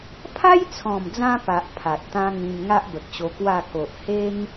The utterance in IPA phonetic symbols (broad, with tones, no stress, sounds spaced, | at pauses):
pʰ a˦ j t͡sʰ ɔ̃˨˩ m d͡z ã˧ p a˨ ʔ pʰ a˨ t̚ t̪ ã˦ ŋ ĩ˧ m ŋ a˦ ʔ b ə˨ k̚ ɕ o˧ k w a˥˧ k o˨ ʔ h e˦ ŋ